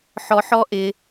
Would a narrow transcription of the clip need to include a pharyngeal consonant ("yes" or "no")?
yes